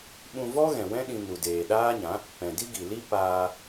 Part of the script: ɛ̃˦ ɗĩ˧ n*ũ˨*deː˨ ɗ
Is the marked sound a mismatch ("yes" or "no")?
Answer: yes